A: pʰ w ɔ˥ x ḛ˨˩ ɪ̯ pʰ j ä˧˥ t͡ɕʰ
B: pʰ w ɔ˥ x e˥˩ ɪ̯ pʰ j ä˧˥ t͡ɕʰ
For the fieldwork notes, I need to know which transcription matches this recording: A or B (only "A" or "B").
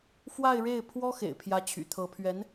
A